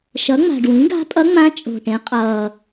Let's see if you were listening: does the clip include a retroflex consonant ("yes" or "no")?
yes